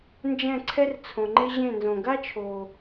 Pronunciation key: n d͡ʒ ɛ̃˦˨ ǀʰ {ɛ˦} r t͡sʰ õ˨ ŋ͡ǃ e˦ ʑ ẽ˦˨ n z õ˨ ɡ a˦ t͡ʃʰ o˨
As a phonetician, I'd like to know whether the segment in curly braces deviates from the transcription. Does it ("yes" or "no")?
no